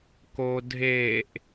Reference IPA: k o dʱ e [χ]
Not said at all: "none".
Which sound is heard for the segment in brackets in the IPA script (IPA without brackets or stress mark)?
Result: ʔ